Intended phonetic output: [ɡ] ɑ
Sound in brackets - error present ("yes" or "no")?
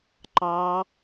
yes